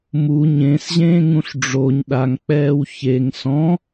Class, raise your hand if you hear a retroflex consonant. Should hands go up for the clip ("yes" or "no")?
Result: yes